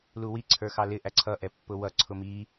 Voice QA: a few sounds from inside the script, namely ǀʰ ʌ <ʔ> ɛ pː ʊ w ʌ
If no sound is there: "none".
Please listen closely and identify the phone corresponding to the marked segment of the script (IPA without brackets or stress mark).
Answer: ʔ